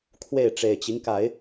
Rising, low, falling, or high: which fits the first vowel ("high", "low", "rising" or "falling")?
falling